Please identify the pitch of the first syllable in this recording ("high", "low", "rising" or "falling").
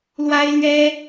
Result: high